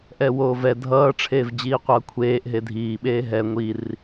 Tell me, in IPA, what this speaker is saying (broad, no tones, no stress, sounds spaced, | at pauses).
ʔ ɛ w oː v ɛ dʱ ʌː ʈ͡ʂʰ eː v d͡ʑ iː qʷ ʌː kʷʰ eː ʔ ɦ e dʱ iː ɓ eː ɦ ɛ ŋʷ i r